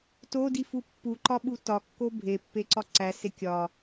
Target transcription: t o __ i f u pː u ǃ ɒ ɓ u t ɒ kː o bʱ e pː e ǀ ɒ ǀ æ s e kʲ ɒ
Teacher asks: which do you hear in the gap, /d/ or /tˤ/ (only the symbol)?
d